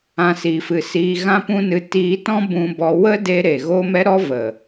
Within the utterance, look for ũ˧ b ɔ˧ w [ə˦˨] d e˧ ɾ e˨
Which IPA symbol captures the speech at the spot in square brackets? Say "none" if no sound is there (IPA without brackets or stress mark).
ə˦